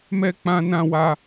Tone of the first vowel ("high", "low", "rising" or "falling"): high